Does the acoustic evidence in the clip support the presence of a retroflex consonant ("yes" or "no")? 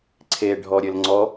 yes